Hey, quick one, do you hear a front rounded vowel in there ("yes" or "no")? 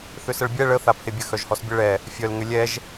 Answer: yes